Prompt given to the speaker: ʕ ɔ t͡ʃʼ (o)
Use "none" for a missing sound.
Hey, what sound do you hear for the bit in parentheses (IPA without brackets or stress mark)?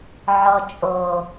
o